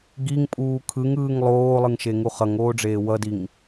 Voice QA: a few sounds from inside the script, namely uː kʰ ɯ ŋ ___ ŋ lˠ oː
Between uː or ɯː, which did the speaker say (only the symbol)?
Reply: ɯː